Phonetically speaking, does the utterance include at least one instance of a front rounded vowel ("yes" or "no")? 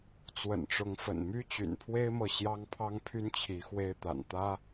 yes